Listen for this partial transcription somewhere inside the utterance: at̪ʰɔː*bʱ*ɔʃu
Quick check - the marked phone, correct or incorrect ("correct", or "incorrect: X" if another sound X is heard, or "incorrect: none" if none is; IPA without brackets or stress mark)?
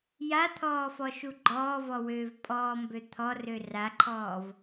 incorrect: f